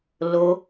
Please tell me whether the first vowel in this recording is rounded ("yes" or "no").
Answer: yes